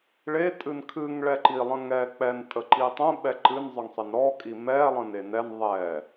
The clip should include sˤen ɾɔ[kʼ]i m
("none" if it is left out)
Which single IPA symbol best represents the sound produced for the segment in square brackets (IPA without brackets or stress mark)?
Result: kʼ